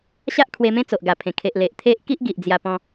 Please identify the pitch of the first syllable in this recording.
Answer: high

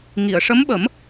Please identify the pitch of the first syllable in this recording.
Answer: low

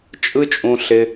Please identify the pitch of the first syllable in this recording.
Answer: high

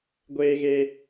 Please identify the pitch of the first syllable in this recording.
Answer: high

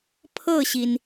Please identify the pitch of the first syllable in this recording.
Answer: falling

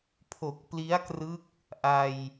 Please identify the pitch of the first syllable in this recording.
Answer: low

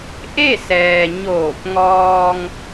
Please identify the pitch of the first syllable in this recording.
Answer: falling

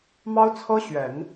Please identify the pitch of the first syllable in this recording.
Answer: high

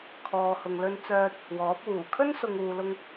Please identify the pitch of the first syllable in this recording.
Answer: low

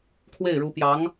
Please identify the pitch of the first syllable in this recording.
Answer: falling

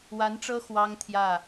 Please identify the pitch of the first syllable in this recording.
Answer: rising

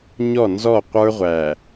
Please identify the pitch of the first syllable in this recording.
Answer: falling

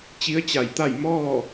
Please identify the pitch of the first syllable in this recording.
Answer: rising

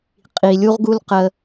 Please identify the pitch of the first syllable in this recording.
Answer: low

